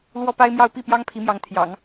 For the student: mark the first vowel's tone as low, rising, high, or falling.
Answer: high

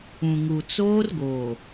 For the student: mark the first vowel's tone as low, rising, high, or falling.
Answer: low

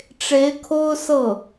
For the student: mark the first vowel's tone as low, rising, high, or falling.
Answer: rising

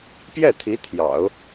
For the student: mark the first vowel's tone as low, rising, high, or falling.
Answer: falling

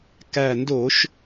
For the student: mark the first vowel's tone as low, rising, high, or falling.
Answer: low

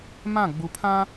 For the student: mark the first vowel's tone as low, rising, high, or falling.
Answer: falling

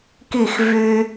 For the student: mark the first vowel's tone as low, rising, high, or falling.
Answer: falling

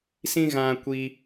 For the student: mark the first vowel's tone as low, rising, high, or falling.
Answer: high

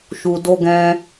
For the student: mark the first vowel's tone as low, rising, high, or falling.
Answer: low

